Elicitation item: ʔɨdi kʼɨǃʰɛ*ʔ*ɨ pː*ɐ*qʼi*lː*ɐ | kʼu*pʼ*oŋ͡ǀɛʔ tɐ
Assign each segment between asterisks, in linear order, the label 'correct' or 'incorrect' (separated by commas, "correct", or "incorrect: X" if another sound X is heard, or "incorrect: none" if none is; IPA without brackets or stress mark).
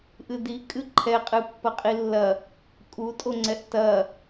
incorrect: qʼ, correct, correct, incorrect: tʼ